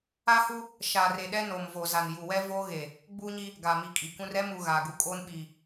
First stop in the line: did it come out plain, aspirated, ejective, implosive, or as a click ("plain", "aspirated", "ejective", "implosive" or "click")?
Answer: implosive